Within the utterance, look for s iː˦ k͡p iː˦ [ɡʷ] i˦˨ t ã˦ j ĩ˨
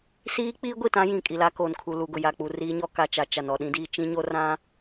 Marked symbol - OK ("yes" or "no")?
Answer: yes